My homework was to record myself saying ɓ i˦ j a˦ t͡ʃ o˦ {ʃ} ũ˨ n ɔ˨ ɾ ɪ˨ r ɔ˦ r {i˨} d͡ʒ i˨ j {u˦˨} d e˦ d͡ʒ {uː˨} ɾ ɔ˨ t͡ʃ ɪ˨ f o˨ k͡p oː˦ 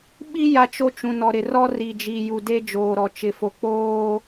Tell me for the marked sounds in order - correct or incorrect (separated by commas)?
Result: incorrect, correct, incorrect, incorrect